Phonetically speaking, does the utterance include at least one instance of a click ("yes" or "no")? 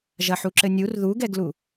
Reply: yes